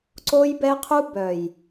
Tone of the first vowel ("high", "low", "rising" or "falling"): high